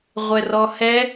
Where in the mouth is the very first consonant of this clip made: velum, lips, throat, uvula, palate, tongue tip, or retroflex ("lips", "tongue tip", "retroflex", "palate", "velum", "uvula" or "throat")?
uvula